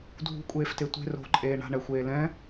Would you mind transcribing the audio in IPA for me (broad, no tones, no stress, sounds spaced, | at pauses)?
dʱ ṳ kʷʼ eː f t e tʷ e̤ r o̤ ǃʼ eː ɳ a̤ ɳ ɛ xʷ eː l ɛ̃